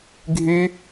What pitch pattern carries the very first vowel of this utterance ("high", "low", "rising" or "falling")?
high